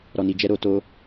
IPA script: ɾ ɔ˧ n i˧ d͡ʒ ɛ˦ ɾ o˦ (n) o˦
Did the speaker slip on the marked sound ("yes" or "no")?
yes